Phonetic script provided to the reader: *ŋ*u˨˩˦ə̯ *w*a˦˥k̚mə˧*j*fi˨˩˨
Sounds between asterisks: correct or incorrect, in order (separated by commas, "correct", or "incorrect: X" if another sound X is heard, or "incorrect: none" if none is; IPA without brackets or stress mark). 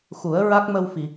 incorrect: x, incorrect: ɹ, incorrect: w